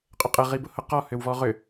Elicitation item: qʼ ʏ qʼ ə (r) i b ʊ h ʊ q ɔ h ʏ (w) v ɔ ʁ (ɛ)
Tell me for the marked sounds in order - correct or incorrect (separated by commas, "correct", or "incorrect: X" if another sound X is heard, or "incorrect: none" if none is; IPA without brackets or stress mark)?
incorrect: ʁ, correct, incorrect: ʏ